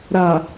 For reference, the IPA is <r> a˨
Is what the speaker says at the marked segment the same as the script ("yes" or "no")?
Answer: no